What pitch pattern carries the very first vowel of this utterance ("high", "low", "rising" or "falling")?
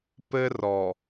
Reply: high